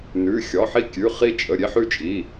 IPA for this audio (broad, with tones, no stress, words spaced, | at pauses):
nʉ˩˧˩ xʲɒ˩˧˩ħi˦kʲʉ˩˧˩ χi˦t͡ʃʼə˩˧˩ ɾʲe˦ħʉ˦t͡ʃʼi˩˧˩